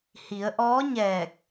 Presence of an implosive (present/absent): absent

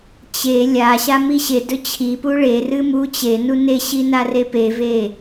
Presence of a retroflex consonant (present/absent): present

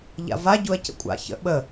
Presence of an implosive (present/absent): present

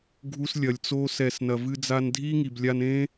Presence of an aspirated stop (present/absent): absent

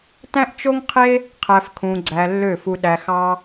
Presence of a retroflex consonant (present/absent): absent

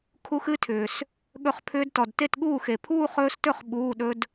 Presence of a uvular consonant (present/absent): present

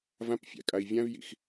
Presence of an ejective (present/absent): present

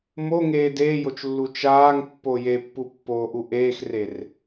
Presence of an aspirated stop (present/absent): absent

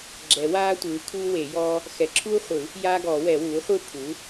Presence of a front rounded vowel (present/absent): absent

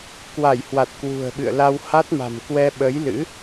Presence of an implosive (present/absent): present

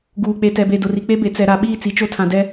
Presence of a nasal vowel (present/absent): present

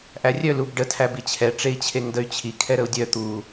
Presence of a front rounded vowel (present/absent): present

